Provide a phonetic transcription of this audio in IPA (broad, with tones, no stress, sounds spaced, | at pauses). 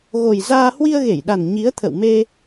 ɣ o˨˩ j z aː˧ h w i˧ ə̯ ɣ e˧˩ j ɗ a˨˩ n ɲ i˨˦ ə̯ t̪ʰ ə̰˧˨ w m e˧